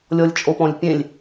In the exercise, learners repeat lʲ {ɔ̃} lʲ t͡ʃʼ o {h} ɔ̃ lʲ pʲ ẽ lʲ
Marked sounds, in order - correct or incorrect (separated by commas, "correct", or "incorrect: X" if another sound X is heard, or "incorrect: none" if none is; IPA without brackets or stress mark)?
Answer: incorrect: ɔ, incorrect: p